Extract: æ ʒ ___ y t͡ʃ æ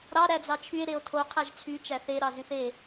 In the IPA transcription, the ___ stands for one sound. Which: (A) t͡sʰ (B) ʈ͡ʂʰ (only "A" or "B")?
A